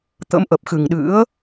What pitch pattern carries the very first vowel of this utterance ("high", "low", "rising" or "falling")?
rising